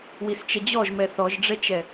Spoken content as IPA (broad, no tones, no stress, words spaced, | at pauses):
wist͡ʃɛd͡ʑɔʒ mɛθɔʒɖ͡ʐɛt͡ʃɛ